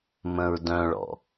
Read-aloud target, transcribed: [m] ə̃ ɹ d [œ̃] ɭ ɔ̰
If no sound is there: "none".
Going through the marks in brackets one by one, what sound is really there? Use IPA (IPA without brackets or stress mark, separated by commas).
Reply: m, œ̃